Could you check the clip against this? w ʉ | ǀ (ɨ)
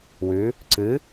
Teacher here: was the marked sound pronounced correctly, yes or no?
yes